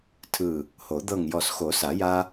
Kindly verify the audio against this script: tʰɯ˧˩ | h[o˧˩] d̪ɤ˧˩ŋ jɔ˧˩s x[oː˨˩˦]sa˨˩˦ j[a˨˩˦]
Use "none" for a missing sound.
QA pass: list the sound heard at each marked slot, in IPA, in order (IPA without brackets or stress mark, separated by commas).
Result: o˨˩˦, o˨˩˦, a˦